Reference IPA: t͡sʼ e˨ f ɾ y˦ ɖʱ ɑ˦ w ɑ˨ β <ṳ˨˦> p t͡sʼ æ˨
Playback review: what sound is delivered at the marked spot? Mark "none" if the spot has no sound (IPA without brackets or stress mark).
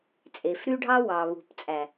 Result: ṳ˨